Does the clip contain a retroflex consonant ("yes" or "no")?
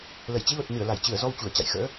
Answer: no